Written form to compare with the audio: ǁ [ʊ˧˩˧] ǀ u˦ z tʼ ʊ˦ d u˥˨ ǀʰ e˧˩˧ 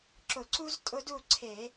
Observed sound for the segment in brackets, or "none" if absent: ʊ˧˩˧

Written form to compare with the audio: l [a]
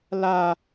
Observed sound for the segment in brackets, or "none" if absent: a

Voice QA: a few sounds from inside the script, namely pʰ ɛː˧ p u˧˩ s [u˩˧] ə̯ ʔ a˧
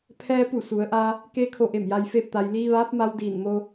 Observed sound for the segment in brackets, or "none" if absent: u˩˧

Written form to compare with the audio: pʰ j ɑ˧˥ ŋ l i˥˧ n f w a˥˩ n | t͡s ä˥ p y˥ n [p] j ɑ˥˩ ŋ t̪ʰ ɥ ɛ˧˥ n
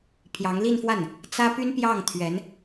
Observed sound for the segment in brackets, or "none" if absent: p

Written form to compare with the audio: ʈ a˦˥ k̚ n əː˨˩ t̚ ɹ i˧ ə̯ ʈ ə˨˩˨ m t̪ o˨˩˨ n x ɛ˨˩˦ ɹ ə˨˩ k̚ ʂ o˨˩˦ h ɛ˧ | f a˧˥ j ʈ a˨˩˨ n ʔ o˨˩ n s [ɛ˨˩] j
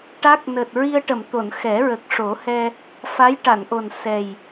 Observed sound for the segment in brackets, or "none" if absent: ɛ˨˩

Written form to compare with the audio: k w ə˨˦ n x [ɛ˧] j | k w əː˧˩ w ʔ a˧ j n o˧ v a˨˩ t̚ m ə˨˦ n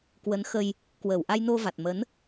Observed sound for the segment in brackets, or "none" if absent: ə˧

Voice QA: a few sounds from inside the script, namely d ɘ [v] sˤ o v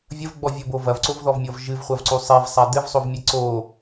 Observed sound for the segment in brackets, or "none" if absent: v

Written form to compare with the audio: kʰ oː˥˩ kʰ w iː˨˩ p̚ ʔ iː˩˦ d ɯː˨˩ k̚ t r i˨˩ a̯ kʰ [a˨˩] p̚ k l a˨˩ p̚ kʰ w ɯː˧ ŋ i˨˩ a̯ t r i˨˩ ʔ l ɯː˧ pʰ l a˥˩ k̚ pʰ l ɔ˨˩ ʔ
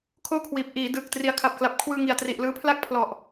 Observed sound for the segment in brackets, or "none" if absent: a˨˩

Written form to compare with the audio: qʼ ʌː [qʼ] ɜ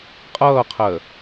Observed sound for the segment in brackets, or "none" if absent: qʰ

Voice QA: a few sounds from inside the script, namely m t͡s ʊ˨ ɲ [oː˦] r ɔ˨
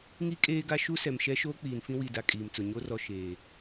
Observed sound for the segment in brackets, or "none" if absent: o˦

